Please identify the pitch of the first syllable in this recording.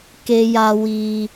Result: high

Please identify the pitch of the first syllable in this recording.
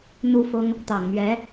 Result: high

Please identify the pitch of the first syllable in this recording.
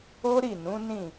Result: high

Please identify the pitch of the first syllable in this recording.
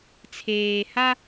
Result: low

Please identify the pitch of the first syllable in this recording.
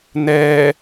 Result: low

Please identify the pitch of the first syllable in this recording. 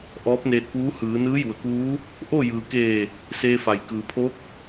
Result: rising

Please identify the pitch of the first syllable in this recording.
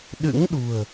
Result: rising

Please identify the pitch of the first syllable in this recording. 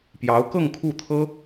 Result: rising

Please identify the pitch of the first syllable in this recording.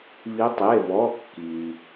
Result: rising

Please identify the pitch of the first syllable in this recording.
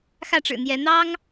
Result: falling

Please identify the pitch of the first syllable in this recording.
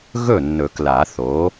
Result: falling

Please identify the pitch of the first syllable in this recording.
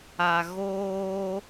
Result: low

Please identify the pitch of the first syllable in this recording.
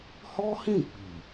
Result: high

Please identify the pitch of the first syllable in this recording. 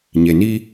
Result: low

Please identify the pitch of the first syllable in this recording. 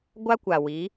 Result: high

